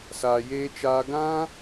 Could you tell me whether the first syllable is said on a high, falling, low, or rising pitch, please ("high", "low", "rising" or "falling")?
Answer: low